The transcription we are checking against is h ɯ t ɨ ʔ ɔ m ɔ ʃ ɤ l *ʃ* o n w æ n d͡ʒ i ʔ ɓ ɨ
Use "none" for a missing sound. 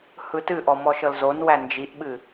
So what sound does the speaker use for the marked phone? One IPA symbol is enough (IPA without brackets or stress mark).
z